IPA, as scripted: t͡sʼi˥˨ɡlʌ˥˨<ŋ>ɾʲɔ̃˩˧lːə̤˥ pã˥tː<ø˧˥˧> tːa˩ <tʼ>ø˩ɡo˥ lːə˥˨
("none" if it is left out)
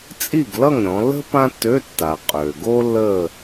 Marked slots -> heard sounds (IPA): ŋ, ø˧˥˧, qʼ

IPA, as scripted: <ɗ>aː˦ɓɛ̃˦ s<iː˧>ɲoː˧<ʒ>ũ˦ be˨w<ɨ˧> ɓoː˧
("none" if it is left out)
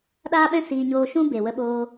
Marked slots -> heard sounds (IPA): ɗ, iː˧, ʃ, ə˧

